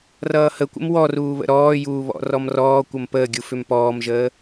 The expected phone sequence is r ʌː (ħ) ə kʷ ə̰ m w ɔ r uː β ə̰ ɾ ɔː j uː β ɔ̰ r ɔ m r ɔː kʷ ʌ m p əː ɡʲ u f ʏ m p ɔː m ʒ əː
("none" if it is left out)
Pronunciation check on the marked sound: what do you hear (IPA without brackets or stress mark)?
h